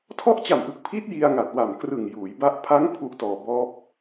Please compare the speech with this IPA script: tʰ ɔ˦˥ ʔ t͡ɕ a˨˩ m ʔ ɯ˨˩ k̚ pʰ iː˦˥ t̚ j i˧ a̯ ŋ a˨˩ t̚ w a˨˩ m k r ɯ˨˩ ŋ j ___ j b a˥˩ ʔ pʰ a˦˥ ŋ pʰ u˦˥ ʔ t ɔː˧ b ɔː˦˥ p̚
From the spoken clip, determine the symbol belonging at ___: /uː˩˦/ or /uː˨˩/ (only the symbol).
uː˩˦